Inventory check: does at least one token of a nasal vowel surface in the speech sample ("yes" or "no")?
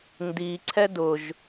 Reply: no